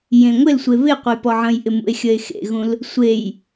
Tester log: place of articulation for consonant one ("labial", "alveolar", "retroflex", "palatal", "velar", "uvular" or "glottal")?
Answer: palatal